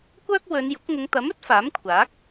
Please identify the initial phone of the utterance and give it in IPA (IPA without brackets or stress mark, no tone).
kʷ